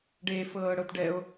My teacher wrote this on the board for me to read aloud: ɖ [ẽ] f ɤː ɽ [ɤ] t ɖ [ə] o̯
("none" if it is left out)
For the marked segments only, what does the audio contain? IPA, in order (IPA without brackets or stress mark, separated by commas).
e, ɤ, ɛ